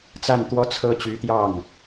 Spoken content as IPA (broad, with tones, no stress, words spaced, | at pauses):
t͡sa˥˩nt̪wɔ˥t͡sʰɤ˥ t͡ɕy˧˥t̪jɑ˥˩ŋ